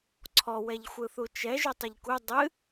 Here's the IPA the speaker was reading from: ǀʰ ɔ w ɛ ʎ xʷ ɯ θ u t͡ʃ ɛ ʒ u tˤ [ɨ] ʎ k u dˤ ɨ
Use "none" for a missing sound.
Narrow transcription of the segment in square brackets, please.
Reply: ɨ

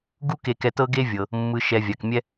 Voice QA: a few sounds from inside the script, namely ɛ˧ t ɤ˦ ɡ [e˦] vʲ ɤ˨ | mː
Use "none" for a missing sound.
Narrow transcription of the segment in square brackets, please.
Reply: e˦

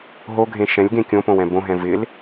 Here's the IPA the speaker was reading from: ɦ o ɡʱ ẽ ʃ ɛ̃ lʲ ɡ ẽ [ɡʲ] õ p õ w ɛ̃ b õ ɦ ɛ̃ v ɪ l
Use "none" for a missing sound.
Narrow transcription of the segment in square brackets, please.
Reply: kʲ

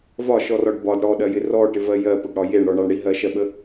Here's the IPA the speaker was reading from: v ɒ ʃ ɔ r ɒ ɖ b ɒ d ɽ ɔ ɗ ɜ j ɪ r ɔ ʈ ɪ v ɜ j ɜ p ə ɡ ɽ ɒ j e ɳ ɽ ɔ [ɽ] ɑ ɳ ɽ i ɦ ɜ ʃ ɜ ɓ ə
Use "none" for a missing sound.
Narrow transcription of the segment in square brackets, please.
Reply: ɳ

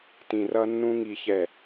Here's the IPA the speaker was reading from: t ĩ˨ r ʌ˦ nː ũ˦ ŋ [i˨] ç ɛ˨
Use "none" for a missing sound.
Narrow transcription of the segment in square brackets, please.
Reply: i˨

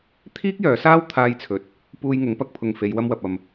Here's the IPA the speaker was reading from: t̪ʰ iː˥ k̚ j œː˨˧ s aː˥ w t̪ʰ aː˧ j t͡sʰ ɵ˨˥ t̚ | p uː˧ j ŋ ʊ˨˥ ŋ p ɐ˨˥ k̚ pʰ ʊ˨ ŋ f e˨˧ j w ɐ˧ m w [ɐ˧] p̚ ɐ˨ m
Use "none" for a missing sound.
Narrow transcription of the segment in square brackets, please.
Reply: ɐ˨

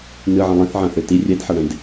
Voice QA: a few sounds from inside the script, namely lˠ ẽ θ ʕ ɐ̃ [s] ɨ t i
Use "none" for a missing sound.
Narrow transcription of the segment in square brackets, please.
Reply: θ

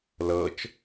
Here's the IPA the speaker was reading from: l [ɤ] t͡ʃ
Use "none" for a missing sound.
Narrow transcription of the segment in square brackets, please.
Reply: ɤ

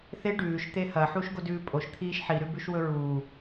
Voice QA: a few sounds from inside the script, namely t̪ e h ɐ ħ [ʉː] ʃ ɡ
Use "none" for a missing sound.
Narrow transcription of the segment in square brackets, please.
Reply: uː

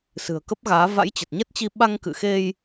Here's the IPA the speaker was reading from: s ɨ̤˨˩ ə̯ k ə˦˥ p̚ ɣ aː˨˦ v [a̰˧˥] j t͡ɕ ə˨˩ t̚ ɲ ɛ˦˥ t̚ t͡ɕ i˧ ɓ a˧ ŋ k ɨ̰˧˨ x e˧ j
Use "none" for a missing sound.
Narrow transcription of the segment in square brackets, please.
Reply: a̰˧˥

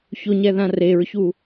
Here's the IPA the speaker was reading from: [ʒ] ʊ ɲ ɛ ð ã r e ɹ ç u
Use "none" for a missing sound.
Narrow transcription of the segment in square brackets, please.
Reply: ç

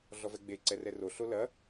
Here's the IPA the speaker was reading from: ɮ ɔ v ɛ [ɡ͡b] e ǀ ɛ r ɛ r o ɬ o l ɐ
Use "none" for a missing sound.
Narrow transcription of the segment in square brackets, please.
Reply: ɡ͡b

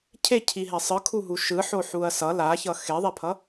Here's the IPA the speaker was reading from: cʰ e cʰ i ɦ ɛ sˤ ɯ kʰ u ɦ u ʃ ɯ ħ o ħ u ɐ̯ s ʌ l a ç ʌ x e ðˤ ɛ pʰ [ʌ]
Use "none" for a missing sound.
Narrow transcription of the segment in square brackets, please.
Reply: ʌ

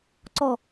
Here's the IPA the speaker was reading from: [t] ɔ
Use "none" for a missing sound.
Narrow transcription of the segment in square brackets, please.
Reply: ǀ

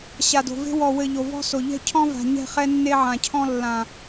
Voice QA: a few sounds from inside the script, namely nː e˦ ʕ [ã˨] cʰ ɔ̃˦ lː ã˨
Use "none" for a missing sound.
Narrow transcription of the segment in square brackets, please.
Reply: ã˨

